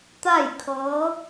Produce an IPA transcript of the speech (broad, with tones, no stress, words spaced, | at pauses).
t̪a˥˨jkʰɤː˧˥